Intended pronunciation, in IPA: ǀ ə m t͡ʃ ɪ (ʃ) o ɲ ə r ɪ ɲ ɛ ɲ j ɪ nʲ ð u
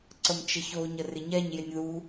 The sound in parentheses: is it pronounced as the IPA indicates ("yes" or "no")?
no